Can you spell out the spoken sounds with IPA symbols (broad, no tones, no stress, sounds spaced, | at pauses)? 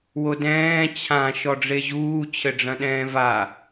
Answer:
w o d ɛ̃ː t͡ɕʰ ã ʃ ɔ ɖ͡ʐ e ʑ uː t͡ɕʰ ɘ ɖ͡ʐ ɐ̃ ɗ ɛ̃ː v a